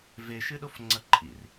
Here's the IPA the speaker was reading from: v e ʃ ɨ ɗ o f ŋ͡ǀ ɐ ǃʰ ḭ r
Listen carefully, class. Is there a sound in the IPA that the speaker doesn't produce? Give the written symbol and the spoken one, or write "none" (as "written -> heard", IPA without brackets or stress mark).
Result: none